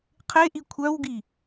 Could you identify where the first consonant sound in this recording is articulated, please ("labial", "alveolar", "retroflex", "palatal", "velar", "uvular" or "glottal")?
uvular